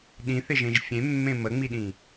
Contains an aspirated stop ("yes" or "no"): no